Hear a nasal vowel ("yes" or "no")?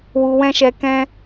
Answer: yes